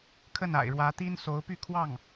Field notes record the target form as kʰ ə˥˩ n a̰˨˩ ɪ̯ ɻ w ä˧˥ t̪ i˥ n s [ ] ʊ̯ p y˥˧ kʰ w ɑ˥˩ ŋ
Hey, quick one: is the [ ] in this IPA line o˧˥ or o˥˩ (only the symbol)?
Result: o˧˥